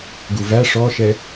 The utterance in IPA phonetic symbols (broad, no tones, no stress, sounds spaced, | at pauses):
ɡ u v æ ʂ ɔ ʃ ɛ